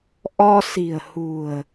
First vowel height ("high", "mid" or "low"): mid